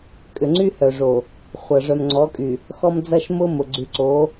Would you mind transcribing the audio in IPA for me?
kʼ ʏ˨ ŋ͡ǀ y˦ h œ˨ ʐ o˨ | χʷ ɐ˨ ʐ œ˨ m ŋ͡ǀ ɔ˨˦ kʼ y˨ | x ɔ˦ m d͡z ɐ˦ ʃ m ʊ˦ m ʊ˨ ɡ͡ǀ y˨ ǀ o˨˦

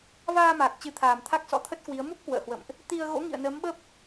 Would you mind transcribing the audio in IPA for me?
v aː˧ m aː˨˩ k̚ t͡ɕ ɨ˨˦ t̪ʰ aː˨˩ m t̪ʰ a˦˥ k̚ s ɔ̰˧˥ t̪ʰ ə˦˥ t̚ k w i˨˦ ə̯ m u˦˥ p̚ k w ə̰ː˧˨ h w ə̰˧˨ m ʔ | t̪ i˧ ə̯ ɣ o̰˧˥ ŋ ḭ˧˨ ə̯ n əː˨˦ m ɓ ə˦˥ p̚

